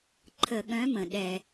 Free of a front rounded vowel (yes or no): no